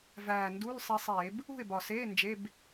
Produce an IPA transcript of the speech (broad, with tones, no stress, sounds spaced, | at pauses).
v æː˨˩ n d u˧˥˧ l sˤ i˧ sˤ eː˧˩˧ b | ṳ˥˨ ɪ̯ b ɒ˨˩ s eː˧˥˧ n d͡ʒ e˧˥˧ b